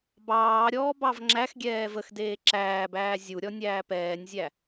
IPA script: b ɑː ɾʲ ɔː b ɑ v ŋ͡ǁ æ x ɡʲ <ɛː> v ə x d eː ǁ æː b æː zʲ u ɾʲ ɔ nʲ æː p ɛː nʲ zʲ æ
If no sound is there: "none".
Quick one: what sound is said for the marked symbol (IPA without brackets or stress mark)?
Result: ɛː